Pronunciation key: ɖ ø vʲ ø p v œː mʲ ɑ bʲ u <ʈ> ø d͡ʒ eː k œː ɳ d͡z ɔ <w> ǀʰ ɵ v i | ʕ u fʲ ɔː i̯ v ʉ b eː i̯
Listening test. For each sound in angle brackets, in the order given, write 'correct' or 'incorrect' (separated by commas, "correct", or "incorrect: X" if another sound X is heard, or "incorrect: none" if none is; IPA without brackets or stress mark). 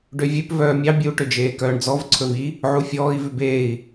correct, incorrect: v